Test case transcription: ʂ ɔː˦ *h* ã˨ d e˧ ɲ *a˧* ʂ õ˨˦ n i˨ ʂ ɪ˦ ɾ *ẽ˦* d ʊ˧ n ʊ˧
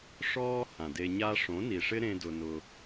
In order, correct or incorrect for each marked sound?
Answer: correct, correct, correct

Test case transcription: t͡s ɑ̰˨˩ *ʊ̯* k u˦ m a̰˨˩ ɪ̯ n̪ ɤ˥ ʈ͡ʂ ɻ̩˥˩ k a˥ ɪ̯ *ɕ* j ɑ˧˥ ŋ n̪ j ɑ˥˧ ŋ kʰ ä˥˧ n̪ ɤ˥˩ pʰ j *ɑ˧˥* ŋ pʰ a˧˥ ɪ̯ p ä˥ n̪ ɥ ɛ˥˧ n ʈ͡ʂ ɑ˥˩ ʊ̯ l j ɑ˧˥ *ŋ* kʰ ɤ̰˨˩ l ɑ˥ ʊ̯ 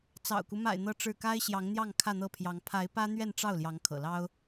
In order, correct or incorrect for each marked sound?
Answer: correct, correct, correct, correct

